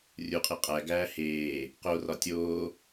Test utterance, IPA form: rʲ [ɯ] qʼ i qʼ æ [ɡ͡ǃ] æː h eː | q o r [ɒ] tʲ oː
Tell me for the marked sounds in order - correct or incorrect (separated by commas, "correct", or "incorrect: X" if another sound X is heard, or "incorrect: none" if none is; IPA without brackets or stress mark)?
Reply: incorrect: u, incorrect: ɡ, correct